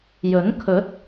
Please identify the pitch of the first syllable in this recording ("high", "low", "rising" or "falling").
rising